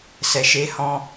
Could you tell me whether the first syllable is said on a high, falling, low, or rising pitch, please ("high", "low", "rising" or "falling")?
low